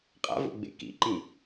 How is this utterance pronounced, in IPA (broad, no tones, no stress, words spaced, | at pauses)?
qʼa̰vo̰ɡ͡bḛ kḭǃĩ